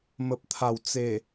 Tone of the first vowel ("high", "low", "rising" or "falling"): low